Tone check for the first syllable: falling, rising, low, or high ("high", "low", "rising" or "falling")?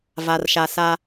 low